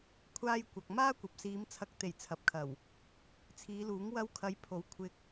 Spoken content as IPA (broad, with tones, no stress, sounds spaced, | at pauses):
kʷʰ aː˧ j kʷ ɐ˨ k̚ m aː˥ kʷ ɐ˨ p̚ s iː˨˧ m t͡sʰ ɐ˨˥ k̚ t̪ e˨˩ j t͡sʰ ɐ˨˥ p̚ kʰ ɐ˨˩ w | t͡sʰ iː˨˧ l uː˨˥ ŋ w ɐ˧ w kʰ ɐ˨˧ j pʰ o˨˥ w kʷʰ ɪ˧ k̚